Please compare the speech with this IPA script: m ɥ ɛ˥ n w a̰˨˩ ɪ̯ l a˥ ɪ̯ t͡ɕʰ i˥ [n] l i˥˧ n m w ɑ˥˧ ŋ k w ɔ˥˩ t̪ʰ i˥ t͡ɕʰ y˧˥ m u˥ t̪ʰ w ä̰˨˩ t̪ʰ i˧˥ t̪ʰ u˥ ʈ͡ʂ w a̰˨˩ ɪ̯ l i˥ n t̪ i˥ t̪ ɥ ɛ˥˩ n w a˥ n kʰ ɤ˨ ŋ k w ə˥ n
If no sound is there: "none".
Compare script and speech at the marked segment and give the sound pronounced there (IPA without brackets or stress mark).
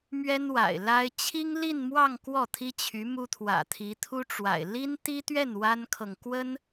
ŋ